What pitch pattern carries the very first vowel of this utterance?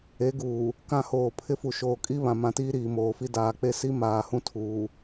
rising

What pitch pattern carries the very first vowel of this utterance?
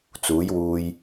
rising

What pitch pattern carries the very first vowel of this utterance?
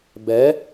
rising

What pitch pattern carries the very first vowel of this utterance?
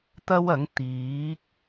high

